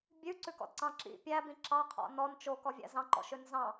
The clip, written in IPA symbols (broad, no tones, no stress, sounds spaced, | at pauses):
bʲ ʉ ǀ ʉ k ɔ̰ d ǀ ɑ̃ ǁ ḭ pʲ æ b ĩ ǁ ɑ qʰ ɔ̰ n ɔ n t͡ʃ o k ɔ vʲ æ̰ z ɑ̃ ǃ ɔ̰ ʃ ø n z ɑ̃